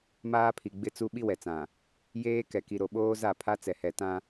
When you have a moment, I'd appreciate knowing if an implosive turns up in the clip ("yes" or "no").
yes